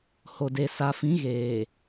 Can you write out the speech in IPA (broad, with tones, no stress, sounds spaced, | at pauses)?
h o˨ d e˨ s a˨ f ĩ˨˦ ɣ eː˨